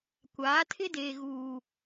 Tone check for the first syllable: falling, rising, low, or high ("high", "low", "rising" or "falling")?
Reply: rising